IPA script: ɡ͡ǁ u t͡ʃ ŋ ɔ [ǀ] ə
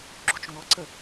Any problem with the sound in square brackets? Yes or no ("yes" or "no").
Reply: no